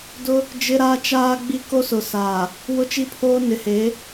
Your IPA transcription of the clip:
dʊ˦ | d͡ʒɪ˦ɾaː˦ t͡ʃaː˦ɡ͡bi˦ ko˦sʊ˨saː˨ | wʊ˦t͡ʃi˦pʰoː˦ nɪ˨˦heː˨˦

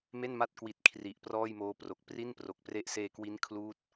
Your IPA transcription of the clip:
me˥˩nma˥˩t̚kwi˨˩t̚ kʰri˨˩ʔ prɔː˥˩jmoː˦˥ pro˨˩k̚pri˥˩npro˨˩k̚pre˦˥ʔ seː˧kwi˦˥n kʰluː˦˥t̚

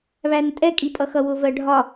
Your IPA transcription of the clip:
βæntʼɛkʼi pʼʌxʌwʊvɜ ɖʱɒ

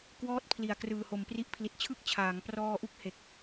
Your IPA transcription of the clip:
kwɔː˦˥t̚pʰli˨˩a̯ krɯː˨˩ho˨˩mpri˦˥ʔ pʰli˨˩t̚t͡ɕʰɯ˥˩k̚ t͡ɕʰaː˩˦ŋprɔː˧ʔu˦˥k̚ he˨˩k̚

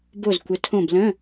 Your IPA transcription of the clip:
bo˧˩zkʷə˩˧tʰõ˧˩b lə̃˧˥˧

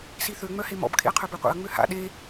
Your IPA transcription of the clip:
siθø ŋ͡mœhemɔ̰b kʰḛɐ̯qʰœbøqʷḛɐ̯ ŋ͡møha̰ ɗe

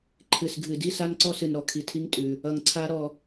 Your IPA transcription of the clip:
ǃʰɨ˨s ɡʱɨ˨di˦ sa˦nǀɔ˦sɨ˨n ɾɔ˨kʰi˨tʰi˦ŋ tʼʉ˨ | ʌ˨ŋǀʰa˦ ɾɔ˦

